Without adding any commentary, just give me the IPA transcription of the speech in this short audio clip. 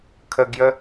kʰ ə ɡ j ə

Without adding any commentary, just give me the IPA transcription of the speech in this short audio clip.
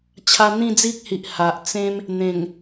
t͡ɕʰ a˧ n̪ ĩ˥˧ d͡z i˦ k̚ h i˨ ʔ h a˨ ʔ t͡s ẽ˦ m | n̪ ẽ˨˩ ŋ

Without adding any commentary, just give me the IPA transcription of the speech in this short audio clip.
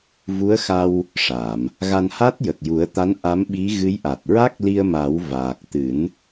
v u˧˥ ə̯ x a˧ w | ʂ a˨˩˨ m | ɣ a˧ n h a˦˥ t̚ j ə˨˩ k̚ j u˨˩˦ ə̯ t̪ a˧˥ n ʔ a˧˥ m ɓ i˧˥ ɣ ɨ˧˥ j ʔ a˨˩ t̚ ɹ a˦˥ k̚ l i˧ ə̯ m a˨˩˦ w v aː˨˩ k̚ t̪ ɨ˨˩˦ n

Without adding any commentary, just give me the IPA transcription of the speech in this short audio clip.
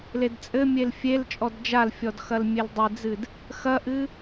l e d t͡sʼ ɘ mʲ e l fʲ e l t͡ʃʼ ɔ d d͡ʒ a l fʲ ɔ d x ɐ l mʲ e l dˤ e d͡z ɨ d | x ɐ ʔ ɨ

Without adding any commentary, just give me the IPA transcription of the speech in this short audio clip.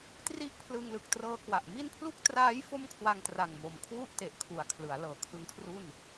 t r i˥˩ ʔ pʰ l ɯ˧ ŋ l ɯ˨˩ k̚ t r ɤː˧ k w a˨˩ ʔ m i˥˩ n pʰ l u˥˩ k̚ t r aː˦˥ j f o˥˩ m kʰ w a˧ ŋ t r a˨˩ ŋ m o˨˩ m kʰ w u˥˩ ʔ t e˨˩ ʔ kʰ u˨˩ a̯ kʰ l ɯ˩˦ a̯ l ɤː˩˦ kʰ ɯ˦˥ ŋ kʰ r u˥˩ n

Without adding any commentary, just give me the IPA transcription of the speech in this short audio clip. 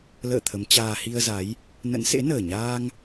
l ə̰ː˧˨ t̪ʰ ə˨˦ m t͡ɕ aː˧ h i˧ ə̯ z a˨˦ j | n ə̰˧˥ n s ḛ˧˥ n əː˨˩ ɲ aː˧ ŋ

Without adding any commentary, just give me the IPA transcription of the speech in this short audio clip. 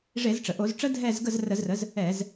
ʐ e˧˩˧ z ʈ͡ʂ ə˩ ʔ o˧˩˧ z ʈ͡ʂ ə˦˥ dʱ ɛ˦˨ z ɡ ə˦˨ z r ə˧˩˧ z r ə˩˥ z | ɛ˧˩˧ z

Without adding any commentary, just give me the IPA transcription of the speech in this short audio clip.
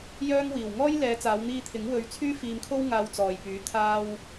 j œː˥ ŋ w iː˨ w ŋ ɔː˥ j l ɛː˨˧ t͡s aː˨˧ w n̪ iː˧ t̪ʰ ɪ˨˥ ŋ w ɵ˧ ɥ t͡sʰ yː˥ f iː˧ m kʰ o˥ w ŋ aː˧ w t͡s ɔː˨ j p yː˨˥ t̪ʰ aː˧ w

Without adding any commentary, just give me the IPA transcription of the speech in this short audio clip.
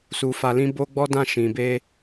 s u˧ f a˧ l ĩ˦ b o˦ ɡ͡b ɔ˦ d ã˦˨ ʃ ĩ˨ b e˧

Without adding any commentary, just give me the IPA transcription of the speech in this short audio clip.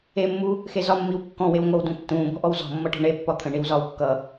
e mː u | x e z ɒ mː i w kː ɔ̃ w e w ŋʷ ʌ w d ũ tː ũː b ɔ̤ ʔ ɔ w z ɔ̤ mː ʌ ʈ ɔ̤ ɳ e pː ɒ t̪ʰ ə̃ ɳ i w z ɒː w kː ʌ

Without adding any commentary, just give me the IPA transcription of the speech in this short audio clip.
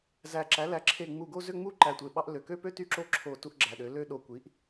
z æ˧˩ ǁ æ˩˥ l æ˩˧˩ ǁʰ e˧˩ ŋ͡m u˧˩ ɡ o˥˧ z ø˥˧ ŋ͡m u˥˧ ǃ æ˧˩ tʷ e˧˩ ɓ ɑ˥˧ ʔ l ø˩˧˩ k ø˥˧ p ø˥˧ t y˥˧ ǁ o˥˧ ǁʰ o˧˩ t u˥˧ ʔ ɡ͡ǁ æ˩˧˩ ɗ ø˩˥ l ø˥˧ ɗ o˧˩ kʷ i˩˥ ʔ

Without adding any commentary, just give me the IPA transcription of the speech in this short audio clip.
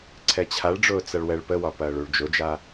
ǀʰ ɛ t͡ɕʰ a ɭ ɖ͡ʐ ʊː t͡s ɐ ɭ w ɛ ɭ p ə w ɒ p ɐː ɭ u ɭ d͡ʒ ʊ d͡ʒ a

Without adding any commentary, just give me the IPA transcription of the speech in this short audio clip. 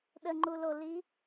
ɗ ə ŋ͡ǃ u l o l i

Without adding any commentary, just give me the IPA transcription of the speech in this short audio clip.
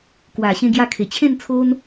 k w a˨˩ ɕ ẽ˧ ɡ j a˧ kʰ e˨˩ t͡ɕʰ ẽ˥˧ n t͡sʰ o˦ n

